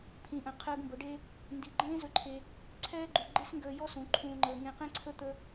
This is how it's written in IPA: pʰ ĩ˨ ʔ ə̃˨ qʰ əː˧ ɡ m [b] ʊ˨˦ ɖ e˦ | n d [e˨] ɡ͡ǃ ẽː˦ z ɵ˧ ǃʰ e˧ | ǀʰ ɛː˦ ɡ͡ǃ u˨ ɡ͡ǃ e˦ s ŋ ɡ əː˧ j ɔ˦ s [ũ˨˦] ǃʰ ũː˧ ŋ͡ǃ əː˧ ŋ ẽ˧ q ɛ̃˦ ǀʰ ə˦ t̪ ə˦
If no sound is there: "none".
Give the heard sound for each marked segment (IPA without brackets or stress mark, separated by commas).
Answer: b, i˨, ũ˨˦